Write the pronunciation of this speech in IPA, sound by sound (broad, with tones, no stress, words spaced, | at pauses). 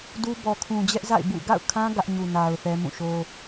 du˦bɔ˨ kʰũ˨d͡ʑɛ˦ʔza̰˦˨ɪ̯ bṵ˦˨ ɡa̰˦˨ʊ̯kʰã˦ ɡä˦ʔɲu˨ na˨ʊ̯ θɛ˦mũ˦˨ ʃo˦